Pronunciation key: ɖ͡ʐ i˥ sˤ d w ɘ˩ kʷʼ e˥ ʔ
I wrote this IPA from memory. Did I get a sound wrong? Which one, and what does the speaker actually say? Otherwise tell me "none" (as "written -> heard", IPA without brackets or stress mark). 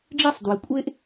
none